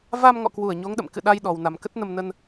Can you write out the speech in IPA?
v a˧ m ŋ ɔ̰˧˨ k w u˧˩ ə̯ ɲ o˨˦ ŋ ɗ ə̰˧˨ m k ɨ̰˧˨ ɗ a˧ j ɗ ɔ˨˩ w n a˨˩ m k ə˦˥ t̚ n ə˧ m n ə˧ n

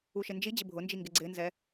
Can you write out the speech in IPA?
u ʃ ɪ n d͡ʒ i d͡ʑ ɪ bʱ ʊ n d͡ʒ i ŋ ɡ ɪ ɡ͡ǀ ɪ n z ɛ

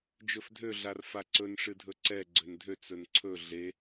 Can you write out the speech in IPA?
d͡ʒ ɵ f dʱ ø ɮ a r f a ǀ ɵ n ʂ ɨ dʱ ɵ ǀ ɛ ɡ͡ǀ ø n dʱ ø t͡s ɵ n ǀʰ ɵ ɮ e

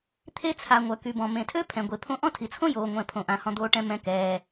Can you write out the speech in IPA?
t̪ʰ e˥ t͡sʰ a˨ ŋʷ œ˩ k y˩ b ɔ̃˩ m ẽ˩ tʰ ø˥ pʰ ɛ̃˩ ɡʷ e˩ pʰ õ˦ ʔ ɔ̃˥ tʰ i˩ t͡sʰ õ˥ j oː˨ ŋʷ ɛ̃˨ pʰ õ˩ ʔ ã˩ h ɔ̃˨ d̪ oː˨ ʈ ɛ̃˨ m ɛ̃˨ k ɛː˩

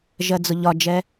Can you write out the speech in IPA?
ʒ ɜ d͡z ʊ ʎ ɒ d͡ʒ ɛ

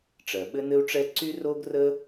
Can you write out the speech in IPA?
ʈ͡ʂ ɜ˩ ɓ ɘ˥ n ɘ˥ u̯ ʈ͡ʂ ɛ˥ ǀ y˥ r o˥ ɡ r ə˥

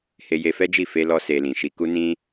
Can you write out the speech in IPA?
h e˧ j e˧ f ɛ˦ d͡ʒ i˦˨ f e˧ l ɔ˦ s e˧ l ĩ˨ ʃ i˧ k u˦ n ĩ˦

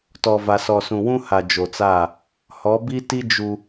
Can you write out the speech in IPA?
t ɔ˨ v a˨ s ɔ˨ s ũ˨ w ũ˦ h a˨ d͡ʒ o˨ t͡s a˦˨ | h ɔ˨˦ b i˦ t i˦ d͡ʒ u˦

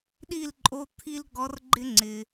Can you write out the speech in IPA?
ɗ i˥˨ l ǃʼ o˧˥˧ t̪ʰ i˥ l ɡ ɔ˧˥ r ɡ͡ǃ ɪ˥ ŋ͡ǀ ɪ˩

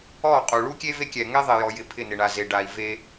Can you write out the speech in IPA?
ɔ˦˨ qʼ u˨ ɭ u˦ kʲ e˦ v e˦ kʲ ɛ˨ ŋ ɛ˦ ðˤ e˨ j ɔ˨ j ɪ˨ pʰ ɪ˦˨ n ɪ˨ ɳ a˨ z e˨ ɖ a˨ i̯ v e˦

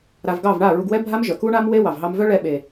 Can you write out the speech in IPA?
ɾ a˨ v ɡ ɑ˦˨ v ɳ a˦˨ ɹ u˧ ɡ w ɛ˦ bʱ a˦ m ʒ œ˨ k u˦ ɳ a˦ m w e˦ w ɑ˨ v ɦ ɑ˧ m v œ˦ ɭ ɛ˧ ɓ e˨

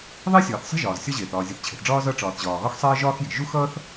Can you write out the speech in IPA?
ðˤ i˥ sʲ ɒː˩ θ sˤ i̤˥ ʒ ɒː˩ z sʲ ɒ˥ ʑ eː˩ θ ɒː˩ zʲ ʌ˩ θ t͡ɕʰ e̤˩ θ ɖ͡ʐ ɒː˥ z ʌ˥ ʈ͡ʂ ɒː˩ θ ʑ ɒː˩ ɣ ɒ˥ x sˤ eː˥ ʒ ɒː˥ x j e̤˩ ʒ u˥ x ʌː˥ θ

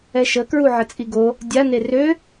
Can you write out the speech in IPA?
ɛ ʃ ə k ɹ u ʕ ə t͡sʼ i ɡ o | dʲ a n e r ø

